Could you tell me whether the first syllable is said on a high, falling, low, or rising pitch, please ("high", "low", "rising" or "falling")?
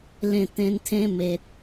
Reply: falling